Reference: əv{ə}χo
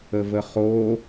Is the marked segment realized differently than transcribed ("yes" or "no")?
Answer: no